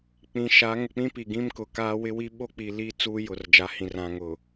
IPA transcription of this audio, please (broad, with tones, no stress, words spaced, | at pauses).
k͡pĩ˨ʃa˨˦ ŋʊ˨k͡pĩ˦ pi˨ɡĩ˦mkʊ˨ kaː˦wɪ˦wi˦ ɓo˦k͡pi˨ li˦ t͡suː˦jʊ˨r d͡ʒa˨˦hĩ˨rã˨ŋʊ˨